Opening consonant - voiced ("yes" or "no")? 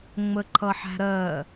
yes